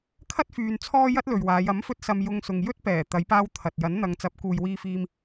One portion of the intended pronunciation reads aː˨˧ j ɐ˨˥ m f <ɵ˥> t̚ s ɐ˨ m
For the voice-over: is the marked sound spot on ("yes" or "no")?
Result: no